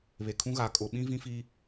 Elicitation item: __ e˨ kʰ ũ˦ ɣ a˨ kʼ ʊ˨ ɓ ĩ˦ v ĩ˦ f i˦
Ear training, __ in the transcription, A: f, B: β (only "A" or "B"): B